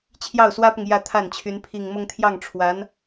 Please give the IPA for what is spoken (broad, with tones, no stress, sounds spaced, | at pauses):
t͡ɕʰ j ɑ˥˩ ʊ̯ s w ä˥ p ʊ˨ ŋ j ä˥˧ t̪ʰ a˥˩ n t͡ɕʰ y˧˥ n pʰ i˨˩ ŋ m ʊ˥˧ ŋ t̪ʰ j ɑ˥˩ ŋ ʈ͡ʂʰ w a˧˥ n